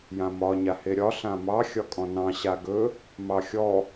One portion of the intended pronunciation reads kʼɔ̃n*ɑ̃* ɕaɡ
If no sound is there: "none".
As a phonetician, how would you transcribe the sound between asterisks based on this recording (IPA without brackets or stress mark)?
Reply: ɑ̃